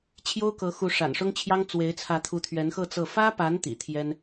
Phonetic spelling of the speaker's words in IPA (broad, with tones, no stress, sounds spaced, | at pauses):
t͡ɕʰ j o˥ ʊ̯ k ɤ˧˥ x u˧˥ ʂ a̰˨˩ n ʂ ʊ˥ ŋ t͡ɕʰ j ɑ˥ ŋ t͡s w e˧˥ ɪ̯ t͡sʰ ä˧˥ t̪ʰ u˧˥ t̪ʰ ɥ ɛ˧˥ n x ɤ˥˧ t͡s ɤ˥˩ f ä˥ p a˧˥ n t̪ ḭ˨˩ t̪ʰ j ɛ˥ n